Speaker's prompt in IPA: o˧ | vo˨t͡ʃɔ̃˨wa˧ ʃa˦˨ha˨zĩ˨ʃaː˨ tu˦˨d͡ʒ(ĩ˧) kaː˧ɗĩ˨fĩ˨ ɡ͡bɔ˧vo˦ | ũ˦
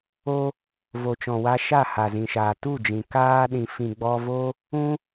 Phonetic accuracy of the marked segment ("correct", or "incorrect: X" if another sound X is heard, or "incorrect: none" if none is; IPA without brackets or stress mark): incorrect: ĩ˨